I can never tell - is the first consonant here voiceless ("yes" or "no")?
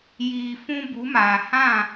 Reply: no